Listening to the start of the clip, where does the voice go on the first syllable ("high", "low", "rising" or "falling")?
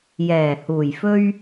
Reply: low